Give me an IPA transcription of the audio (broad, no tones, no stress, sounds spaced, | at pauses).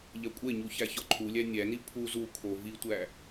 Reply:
ʎ æ kʷʼ e ɲ u ç æ ç ɒ ǃʰ u lʲ æ nʲ æ n i pʰ u z u kʰ o v i tʷ æ